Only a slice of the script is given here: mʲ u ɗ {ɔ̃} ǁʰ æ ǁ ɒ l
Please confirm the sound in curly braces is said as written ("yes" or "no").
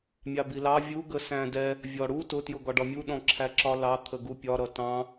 yes